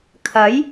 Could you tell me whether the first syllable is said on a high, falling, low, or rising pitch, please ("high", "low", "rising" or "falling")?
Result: rising